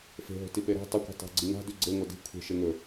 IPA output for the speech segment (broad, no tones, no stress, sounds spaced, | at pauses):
f e̤ ɦ o̤ t i p e ɾ a̤ tˤ ɐ kʷ e̤ tˤ a̤ ɡ͡ǀ i ŋ a̤ d ʉ ɡ͡ǀ e ŋʷ ɐ d i̤ kʷʰ e̤ ʃ e ŋ ɵ